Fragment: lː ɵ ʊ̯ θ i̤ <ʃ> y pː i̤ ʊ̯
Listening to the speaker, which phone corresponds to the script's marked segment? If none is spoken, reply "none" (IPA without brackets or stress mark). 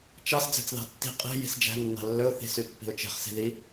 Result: s